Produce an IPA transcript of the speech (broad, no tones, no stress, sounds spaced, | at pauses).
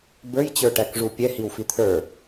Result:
b ə˞ j t͡ɕ ə˞ ʈ æ k ʐ u pʲ ɛ h i w f i t̪ʰ ə˞